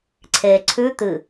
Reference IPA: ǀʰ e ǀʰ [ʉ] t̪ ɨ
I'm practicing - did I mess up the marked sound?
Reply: no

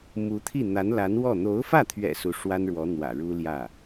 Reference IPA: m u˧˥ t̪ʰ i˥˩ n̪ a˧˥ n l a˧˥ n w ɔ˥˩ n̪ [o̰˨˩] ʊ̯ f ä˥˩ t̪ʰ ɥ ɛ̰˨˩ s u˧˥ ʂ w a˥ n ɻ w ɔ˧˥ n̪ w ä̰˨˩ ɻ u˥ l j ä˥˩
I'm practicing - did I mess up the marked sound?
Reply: yes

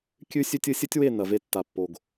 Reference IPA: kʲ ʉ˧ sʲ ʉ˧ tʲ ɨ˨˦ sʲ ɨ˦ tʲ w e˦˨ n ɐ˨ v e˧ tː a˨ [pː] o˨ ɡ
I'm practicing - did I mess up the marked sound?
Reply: no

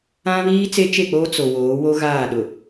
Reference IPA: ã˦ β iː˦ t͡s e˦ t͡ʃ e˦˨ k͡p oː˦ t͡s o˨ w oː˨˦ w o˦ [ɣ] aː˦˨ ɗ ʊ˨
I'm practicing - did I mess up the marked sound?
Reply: no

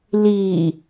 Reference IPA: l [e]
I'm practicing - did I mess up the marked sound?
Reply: yes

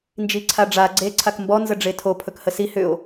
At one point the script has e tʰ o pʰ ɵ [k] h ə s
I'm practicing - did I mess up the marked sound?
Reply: no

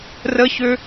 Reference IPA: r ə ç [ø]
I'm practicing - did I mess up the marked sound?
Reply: no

